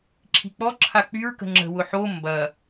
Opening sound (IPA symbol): ǁʰ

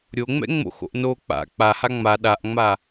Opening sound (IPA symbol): ɾʲ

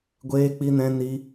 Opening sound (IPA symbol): ɡʷ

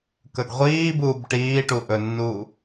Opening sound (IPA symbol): k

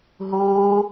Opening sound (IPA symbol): ɦ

